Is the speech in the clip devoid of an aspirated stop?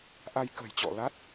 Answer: yes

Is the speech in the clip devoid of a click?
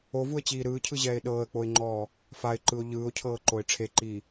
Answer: no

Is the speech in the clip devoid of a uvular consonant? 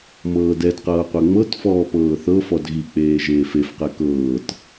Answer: no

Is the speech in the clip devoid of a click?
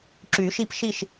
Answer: no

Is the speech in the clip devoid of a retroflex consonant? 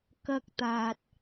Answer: yes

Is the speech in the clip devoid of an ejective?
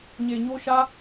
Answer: yes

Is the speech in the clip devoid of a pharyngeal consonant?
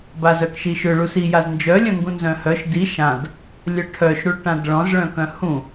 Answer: yes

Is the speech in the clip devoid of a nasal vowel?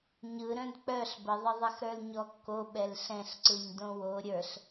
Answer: no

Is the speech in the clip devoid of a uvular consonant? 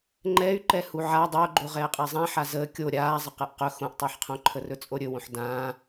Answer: no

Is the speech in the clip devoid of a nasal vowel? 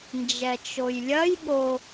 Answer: yes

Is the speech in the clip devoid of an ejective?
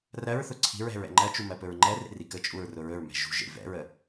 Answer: no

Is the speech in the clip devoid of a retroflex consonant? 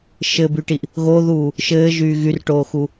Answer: no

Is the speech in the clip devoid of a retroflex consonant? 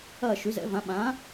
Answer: yes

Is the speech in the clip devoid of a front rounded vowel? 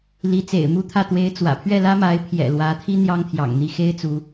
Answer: yes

